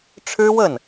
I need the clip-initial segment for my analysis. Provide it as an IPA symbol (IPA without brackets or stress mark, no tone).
ʈ͡ʂʰ